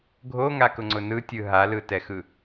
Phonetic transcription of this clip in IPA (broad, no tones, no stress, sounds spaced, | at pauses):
ɡʱ o ŋ a k ʊ ŋ͡ǀ ʊ n ɯ tʲ ɯ ɦ a l ɯ t ɛ x ɯ